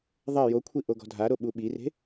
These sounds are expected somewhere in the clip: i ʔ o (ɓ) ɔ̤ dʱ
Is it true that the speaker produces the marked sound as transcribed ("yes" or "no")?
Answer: no